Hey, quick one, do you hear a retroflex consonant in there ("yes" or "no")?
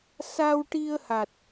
yes